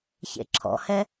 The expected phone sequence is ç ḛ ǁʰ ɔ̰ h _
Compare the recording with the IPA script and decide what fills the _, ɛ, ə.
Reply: ɛ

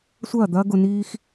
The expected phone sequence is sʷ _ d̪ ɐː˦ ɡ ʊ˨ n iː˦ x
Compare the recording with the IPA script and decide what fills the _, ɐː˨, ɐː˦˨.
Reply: ɐː˦˨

